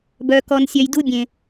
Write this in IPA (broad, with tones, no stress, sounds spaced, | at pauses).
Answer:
b œː˧ k ɔ˧ n sʲ œ˧ j d u˦ bʲ ẽ˨